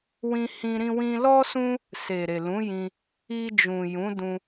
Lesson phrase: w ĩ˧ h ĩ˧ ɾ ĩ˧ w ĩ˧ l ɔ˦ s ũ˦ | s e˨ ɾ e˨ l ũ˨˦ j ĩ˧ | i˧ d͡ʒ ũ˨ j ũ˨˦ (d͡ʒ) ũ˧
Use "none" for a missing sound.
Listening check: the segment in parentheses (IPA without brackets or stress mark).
d